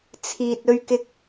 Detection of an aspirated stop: present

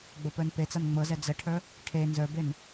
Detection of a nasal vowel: absent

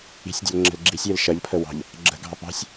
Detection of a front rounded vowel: absent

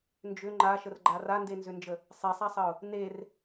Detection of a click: present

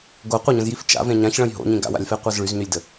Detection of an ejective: absent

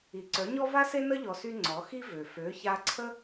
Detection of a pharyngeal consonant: absent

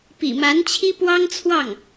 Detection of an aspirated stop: present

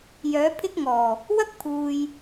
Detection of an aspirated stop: present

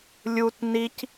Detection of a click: absent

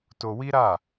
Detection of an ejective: absent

